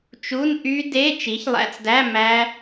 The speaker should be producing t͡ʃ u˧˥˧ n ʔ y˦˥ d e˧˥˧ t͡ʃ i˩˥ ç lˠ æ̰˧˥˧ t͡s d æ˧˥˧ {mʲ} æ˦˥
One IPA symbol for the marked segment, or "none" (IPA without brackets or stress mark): m